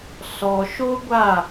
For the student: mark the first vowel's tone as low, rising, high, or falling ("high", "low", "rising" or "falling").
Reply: low